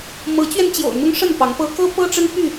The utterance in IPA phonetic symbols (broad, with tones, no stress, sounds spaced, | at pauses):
m ɤ˨˦ t͡ɕ ɥ ɛ˧ n t͡ɕ j o̰˨˩ ʊ̯ n̪ ʊ˦ ŋ ʂ ə˥˨ n p ɑ˨˦ ŋ p ɤ˦ k ɤ˦ p ɤ˦ ʈ͡ʂ ə˦ n p y˥˨